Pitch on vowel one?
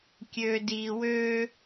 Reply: low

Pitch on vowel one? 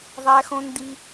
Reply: high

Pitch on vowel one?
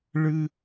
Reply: high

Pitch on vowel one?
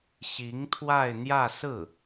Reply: rising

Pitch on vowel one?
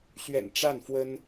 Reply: low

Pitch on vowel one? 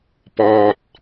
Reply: low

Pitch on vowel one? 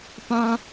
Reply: high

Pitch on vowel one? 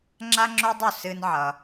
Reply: high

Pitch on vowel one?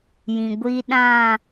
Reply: low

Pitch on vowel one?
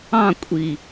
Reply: falling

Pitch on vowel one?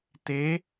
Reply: rising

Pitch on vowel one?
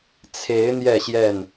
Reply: rising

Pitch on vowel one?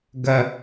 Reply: high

